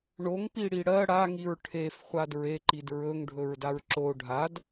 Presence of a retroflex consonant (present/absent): present